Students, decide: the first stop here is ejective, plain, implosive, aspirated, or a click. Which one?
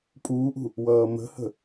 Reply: ejective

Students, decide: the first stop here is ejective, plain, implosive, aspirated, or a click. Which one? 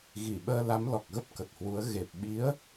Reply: implosive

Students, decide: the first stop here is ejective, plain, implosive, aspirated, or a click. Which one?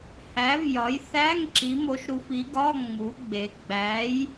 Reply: click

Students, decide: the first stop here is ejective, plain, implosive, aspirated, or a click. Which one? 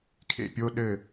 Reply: aspirated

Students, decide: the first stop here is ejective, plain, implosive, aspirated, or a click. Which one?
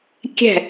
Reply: plain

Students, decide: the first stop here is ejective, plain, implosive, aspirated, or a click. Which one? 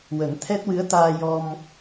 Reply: aspirated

